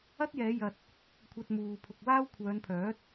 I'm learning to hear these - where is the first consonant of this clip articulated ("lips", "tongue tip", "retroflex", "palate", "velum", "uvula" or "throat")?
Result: tongue tip